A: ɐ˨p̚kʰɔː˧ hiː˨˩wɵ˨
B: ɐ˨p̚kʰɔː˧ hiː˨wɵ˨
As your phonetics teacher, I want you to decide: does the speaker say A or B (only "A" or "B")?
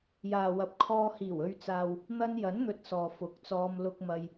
A